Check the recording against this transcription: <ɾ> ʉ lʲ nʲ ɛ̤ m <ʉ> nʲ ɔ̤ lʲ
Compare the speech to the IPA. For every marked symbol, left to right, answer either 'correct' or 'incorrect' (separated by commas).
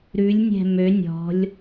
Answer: correct, incorrect